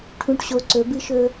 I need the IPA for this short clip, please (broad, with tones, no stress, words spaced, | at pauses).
ʈʰũ˨ʈɕo˨ ǀɵ˨˦bɨ˦ʃɵ˦